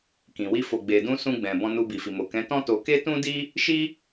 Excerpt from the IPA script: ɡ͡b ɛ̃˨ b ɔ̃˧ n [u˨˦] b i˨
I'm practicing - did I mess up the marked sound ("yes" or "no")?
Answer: yes